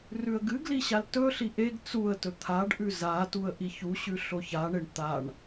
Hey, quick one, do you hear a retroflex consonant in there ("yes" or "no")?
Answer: yes